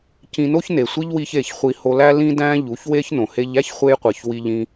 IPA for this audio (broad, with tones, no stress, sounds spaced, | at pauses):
c ĩ˧ n o˦ ç n e˨ sʷ i˦ ʎ w i˦ ç e˦˨ ç χʷ i˧ h o˧ l æ˦ l ĩ˦ d æ̃˦ ʎ u˨˦ ç w e˦ ç n õ˨ h e˧ ʎ æ˦ ç χʷ e˦ j qʷ i˨ ç w i˧ ʎ ĩ˧